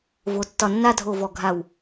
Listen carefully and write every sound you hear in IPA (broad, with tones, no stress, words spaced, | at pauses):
vo˩˧tːɒ˧˩nːa˥˧ dʱo˧˩vɔ˧˩ɡʱa˧˩w